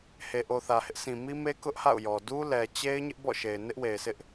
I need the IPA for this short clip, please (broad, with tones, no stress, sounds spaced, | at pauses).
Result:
h e˨ ʔ o˨ θ ä˨ h ɪ˦ ʔ sʰ ĩ˨ m i˦ m e˦ k ʊ˦ ʔ h a̰˦˨ ʊ̯ j ɔ˨ d u˦ l ɛ˨ t͡ɕ e˦ ɪ̯ ɲ ɪ˦ ʔ b ɔ̰˦˨ ʃ e˨ ɪ̯ n ɪ˦ ʔ w e˨ ɪ̯ sʰ ɪ˦ ʔ